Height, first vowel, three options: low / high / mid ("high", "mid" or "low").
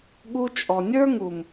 high